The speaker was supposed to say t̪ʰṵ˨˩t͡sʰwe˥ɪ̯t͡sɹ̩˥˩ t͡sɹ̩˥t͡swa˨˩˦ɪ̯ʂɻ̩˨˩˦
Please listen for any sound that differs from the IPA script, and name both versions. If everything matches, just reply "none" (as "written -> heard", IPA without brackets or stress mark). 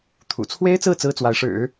a˨˩˦ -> a˧˥